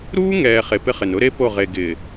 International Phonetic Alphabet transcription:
ɾ uː˦ ŋ ɛː˨ χ e˨ p ɪ˦ χ ɪ˨ n ʊ˦ ɾ e˦ p o˦˨ ʁ e˨ ɡ ɪ˨

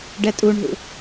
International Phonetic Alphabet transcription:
ɖ ɛ tʼ u ɳ ɦ ṵ

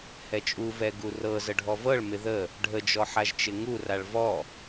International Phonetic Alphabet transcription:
h ɛ t͡ʃʼ u v ɛ ɡ u r ɤ z ə ɖʱ ɔ v ɤ ɭ m ɪ ð ə | ɖʱ ə d͡ʒ ɔ ħ a ʒ t͡ʃ ɪ ŋ u r a ɭ v ɔ

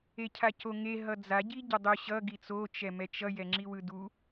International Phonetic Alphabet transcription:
e cʰ a c o ŋ e ɦ ʌ d͡z a ɟ i ɟ ʌ dˤ o ɕ ʌ ɡ i t͡s o t͡ʃ ɛ m ɛ t͡ʃ ʌ j ɛ ŋ͡ǁ i w ɯ d u

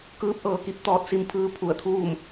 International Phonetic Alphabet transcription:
k ɯː˧˥ p̚ ʔ ɤː˧ k i˧ p̚ t̪ ɔː˧ t̚ s i˧ m pʰ ɯː˧ pʰ u˧˩ ə̯ t̪ʰ uː˥˨ m

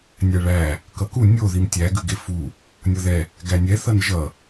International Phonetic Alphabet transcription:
nʲ æ ɭ æ | k ʌ k u nʲ o ð i m tʲ æ ɡ ʉ ɡ e f u | nʲ ʌ ð ɛ | ɡ æ nʲ ɛ θ ʌ n ʒ ʌ

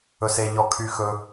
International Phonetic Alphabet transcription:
ɵ˩ s e˩ ʎ ɔ˩ kʰ y˩ x ɵ˩

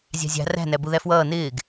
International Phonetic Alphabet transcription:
zʲ ɑ̤ zʲ ɑ̤ r æ̤ n æ b u ð æ f w ʌː n ɪː ɡ

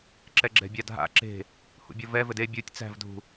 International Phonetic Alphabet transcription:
ǁ ɛ ɡ͡ǁ ɛ̤ bʲ a dʱ a̰ ǁ e̤ | h ṵ bʲ ɔ v ɛ v ɘ d e bʲ u tʲ t͡s æ̤ v dʱ ṳ

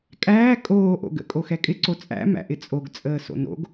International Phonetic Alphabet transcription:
kʼ æː kʼ oː ʔ o̰ ɡ ə̰ kʼ o x ɛ kʼ ɪ ǀ o t͡sʼ æ̰ m æ̰ ʔ ɪ t͡sʼ o ɡ t͡sʼ əː s o̰ n o̰ ɡ

